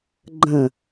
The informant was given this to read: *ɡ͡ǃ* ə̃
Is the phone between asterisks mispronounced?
no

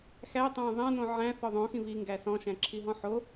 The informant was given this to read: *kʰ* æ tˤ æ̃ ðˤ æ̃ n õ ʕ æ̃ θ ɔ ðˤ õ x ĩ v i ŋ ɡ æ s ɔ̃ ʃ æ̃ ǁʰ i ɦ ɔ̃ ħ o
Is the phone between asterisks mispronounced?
yes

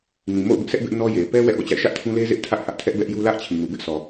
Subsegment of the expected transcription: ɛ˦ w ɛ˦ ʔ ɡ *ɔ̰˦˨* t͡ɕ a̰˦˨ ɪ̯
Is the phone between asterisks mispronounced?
no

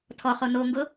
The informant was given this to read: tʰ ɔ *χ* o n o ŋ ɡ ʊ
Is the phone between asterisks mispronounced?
no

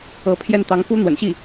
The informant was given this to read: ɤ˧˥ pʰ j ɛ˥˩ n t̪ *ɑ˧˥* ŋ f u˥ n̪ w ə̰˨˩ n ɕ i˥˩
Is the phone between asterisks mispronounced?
no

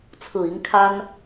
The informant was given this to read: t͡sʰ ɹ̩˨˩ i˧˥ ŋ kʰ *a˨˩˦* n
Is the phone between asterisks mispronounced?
yes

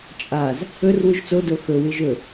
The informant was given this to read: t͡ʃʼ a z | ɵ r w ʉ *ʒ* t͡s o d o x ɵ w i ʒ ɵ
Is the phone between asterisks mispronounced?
no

